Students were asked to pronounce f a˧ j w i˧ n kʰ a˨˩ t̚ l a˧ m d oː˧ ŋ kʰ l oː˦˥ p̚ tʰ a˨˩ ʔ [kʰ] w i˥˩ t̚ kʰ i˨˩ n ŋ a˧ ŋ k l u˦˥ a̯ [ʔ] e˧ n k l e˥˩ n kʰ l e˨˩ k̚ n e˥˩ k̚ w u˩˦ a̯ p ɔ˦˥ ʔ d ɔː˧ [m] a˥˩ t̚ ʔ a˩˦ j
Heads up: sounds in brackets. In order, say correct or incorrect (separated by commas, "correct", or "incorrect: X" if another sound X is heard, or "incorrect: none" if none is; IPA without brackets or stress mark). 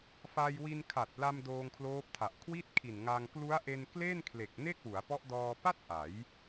correct, correct, incorrect: p